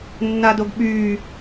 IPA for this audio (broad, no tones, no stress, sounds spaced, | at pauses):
nː a d o ɡ ɓ yː